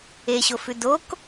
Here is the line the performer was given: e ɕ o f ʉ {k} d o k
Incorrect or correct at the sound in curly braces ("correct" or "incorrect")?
incorrect